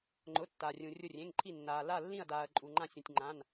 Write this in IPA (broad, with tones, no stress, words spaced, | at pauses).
ŋ͡ǃʊ˩˧˩tːa˩rʲũ˩ rʲʊ˧˩rʲẽ˩˧˩ŋǃʰi˧˩nːaː˩ la˧˩lːĩ˧˩ɐ̯daː˩ɐ̯ ǃʼu˩ŋ͡ǃã˧˩sʲũ˩tʲŋ͡ǃã˩˧˩n